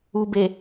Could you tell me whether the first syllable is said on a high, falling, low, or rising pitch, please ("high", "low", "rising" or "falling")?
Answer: low